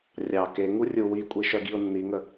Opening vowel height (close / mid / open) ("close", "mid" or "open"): open